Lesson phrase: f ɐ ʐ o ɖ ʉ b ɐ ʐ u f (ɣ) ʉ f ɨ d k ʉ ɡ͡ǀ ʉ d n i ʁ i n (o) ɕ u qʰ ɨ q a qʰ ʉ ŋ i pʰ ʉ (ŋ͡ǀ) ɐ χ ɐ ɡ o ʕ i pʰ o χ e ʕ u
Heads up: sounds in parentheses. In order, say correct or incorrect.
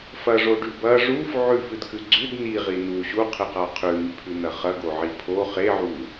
incorrect, incorrect, incorrect

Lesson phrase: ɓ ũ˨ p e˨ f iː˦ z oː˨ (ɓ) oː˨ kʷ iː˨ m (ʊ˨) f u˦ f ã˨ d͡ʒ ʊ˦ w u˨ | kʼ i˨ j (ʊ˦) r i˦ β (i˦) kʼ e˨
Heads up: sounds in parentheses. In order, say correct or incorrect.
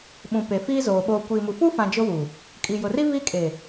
correct, incorrect, incorrect, correct

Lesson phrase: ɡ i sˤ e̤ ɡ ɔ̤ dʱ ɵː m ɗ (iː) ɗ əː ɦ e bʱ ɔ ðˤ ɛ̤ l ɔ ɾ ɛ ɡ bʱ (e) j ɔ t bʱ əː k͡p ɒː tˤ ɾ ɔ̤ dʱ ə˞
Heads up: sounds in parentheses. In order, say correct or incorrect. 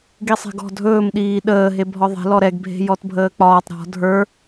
correct, incorrect

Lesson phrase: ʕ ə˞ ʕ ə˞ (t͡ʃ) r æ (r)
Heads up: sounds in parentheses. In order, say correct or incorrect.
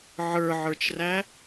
correct, incorrect

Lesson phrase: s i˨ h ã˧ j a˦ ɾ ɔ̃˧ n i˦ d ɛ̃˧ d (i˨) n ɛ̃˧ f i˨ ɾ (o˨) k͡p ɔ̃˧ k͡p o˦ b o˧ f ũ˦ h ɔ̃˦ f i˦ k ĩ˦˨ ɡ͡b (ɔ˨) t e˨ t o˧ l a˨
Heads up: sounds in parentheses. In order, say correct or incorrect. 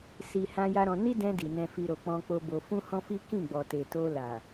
correct, correct, correct

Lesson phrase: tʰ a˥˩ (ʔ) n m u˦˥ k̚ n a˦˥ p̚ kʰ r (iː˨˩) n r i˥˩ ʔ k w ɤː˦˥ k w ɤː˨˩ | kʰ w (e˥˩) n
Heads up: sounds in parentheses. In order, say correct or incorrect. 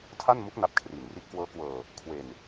incorrect, correct, incorrect

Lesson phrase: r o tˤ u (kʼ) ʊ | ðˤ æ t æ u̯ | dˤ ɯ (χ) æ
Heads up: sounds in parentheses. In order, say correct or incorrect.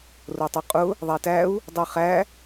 incorrect, correct

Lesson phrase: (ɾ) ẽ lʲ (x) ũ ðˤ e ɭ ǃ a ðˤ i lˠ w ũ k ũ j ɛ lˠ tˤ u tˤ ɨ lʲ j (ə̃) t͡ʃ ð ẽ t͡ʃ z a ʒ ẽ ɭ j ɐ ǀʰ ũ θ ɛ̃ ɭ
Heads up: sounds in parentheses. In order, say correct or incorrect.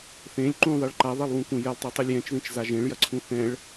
incorrect, incorrect, incorrect

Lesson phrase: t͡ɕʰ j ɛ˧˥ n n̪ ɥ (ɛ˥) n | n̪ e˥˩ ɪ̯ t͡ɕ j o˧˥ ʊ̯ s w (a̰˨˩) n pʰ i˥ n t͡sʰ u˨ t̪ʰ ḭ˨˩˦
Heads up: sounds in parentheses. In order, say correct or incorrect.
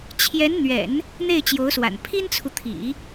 incorrect, correct

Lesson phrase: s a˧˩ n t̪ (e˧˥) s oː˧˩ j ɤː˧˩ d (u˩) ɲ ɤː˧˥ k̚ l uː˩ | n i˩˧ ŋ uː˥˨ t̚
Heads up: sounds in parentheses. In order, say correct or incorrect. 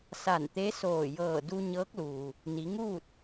correct, incorrect

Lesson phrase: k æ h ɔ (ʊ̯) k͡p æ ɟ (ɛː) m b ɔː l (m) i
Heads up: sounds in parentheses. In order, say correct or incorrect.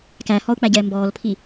correct, correct, incorrect

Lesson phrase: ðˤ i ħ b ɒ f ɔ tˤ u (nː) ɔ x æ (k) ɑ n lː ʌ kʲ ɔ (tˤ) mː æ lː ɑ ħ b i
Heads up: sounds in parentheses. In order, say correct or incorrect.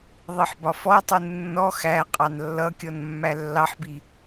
correct, incorrect, incorrect

